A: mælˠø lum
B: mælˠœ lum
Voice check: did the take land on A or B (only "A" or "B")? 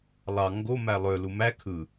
A